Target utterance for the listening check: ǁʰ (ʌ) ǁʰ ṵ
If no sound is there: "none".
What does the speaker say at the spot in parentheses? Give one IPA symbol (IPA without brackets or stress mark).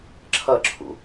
ʌ